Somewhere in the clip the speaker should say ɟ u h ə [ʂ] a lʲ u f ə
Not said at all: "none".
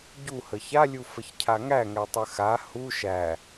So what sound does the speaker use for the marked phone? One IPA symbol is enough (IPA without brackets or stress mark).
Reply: ç